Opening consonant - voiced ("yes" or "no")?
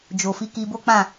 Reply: yes